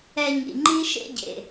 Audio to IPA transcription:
ɛ˧ ɲ ḭ˨ ŋ͡ǃ i˦ ʃ ḛ˦ ɟ ḛ˨

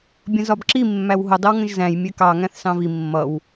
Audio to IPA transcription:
bʲ ə̃ z ɒ b ǁ i mː æ w ɦ ʊ dˤ ɪ w ŋ ə̃ ʒ z æ̃ j mʲ ɛ k ɑ ŋ æ̃ θ s ɑ̃ v i mː ʌ w

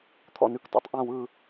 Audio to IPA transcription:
t̪ʰ ɔ̰˨˩ n ʉ˦˨ k t ɔ̰˨˩ tˤ ʔ ã˦˨ w ɯ˦˨

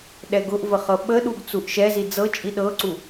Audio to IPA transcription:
ɗ ɛ ɡ ʊ ʔ v ə χ ɤ ɓ ə ɗ u ɡ t͡s u ʔ ʃ ɛ z i d͡z ɤ t͡ʃʼ i ɗ ɤ ǀ u

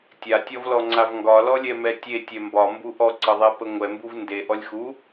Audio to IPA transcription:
tʲ a tʲ ɔ v l ɔ ŋ͡ǀ a v ŋ ɡ ɒ l ɔ lʲ ɛ m ɛ tʲ e tʲ ɛ m b ɒ m b u ʔ ɔ ǀ ɤ ðˤ ɛ p ə ŋʷ ɛ m b u v n d e ʔ ɔ lʲ x u

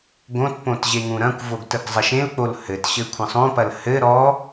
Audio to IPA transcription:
ɡ õ t p õ t ʑ e ŋ ũ ɾ ɐ̃ kʷ v o ɡ t ə ɡ zˤ ɐ ʃ ẽ l k͡p o l h ɘ t ɕ ɘ kʷʰ ə̃ sˤ õ p ɐ l h ɘ ɾ ɔ

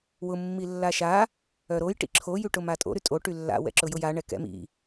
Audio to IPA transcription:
w ʊ mː i lː a ʃ a | œ ɾ o j ʈ ḭ ǁʰ o j y ʈ ʊ m a tʼ o̰ ɾ y tʼ o ʈ y lː a̰ w ɛ̰ ǁ ʊ j ʊ j a ɳ ɛ k ɛ̰ m ḭ

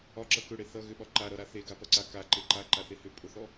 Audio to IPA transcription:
ɒ ǁ ʌ k ʏ ɽ e θ ʌ ɣ ʏ ɓ ɒ ǃ a ɾ ʌ ɾ a θ e ɡ a p ʌ ǀ a k a ǃ e ǃ a ǃ a θ e h ʏ pʼ ʊ θ ɔ

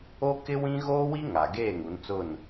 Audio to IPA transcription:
o˦ k ɪ˦ w ĩ˦ ɣ oː˦ w i˦ ŋ a˨ ɡ eː˦˨ ŋ u˨˦ n t͡s ʊ˦˨ n

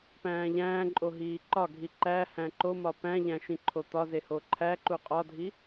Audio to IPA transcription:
p æ̃ː ʎ æ̃ː ǃʼ o ɦ iː ǃ ɒ ɡʱ i ǃ æ h æ̃ ǃ o m ɒ p æ̃ ʎ æ̃ ʃ ĩ ǃʰ o t̪ ɒ z e h o ǃʰ æ ǃ u qʼ ɒ dʱ i

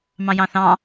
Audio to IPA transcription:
m ɑ̃ j ɑ̃ θ ɑ̃

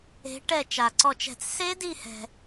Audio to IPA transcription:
e̤˨˦ ʈ ɛ˦˨ t͡ʃ a˨ ǀ ɔ˦˨ t͡ʃ ɛ̤˦˨ t͡s s e˦˥ d i˦˨ h ɛ̤˨

